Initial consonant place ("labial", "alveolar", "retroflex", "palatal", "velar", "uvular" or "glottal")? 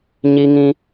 palatal